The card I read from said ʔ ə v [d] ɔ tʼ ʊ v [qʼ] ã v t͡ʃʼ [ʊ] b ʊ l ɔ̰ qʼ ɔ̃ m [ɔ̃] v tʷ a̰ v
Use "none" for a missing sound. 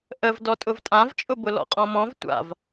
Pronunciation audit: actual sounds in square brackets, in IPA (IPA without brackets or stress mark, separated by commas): d, tʼ, ʊ, ɔ̃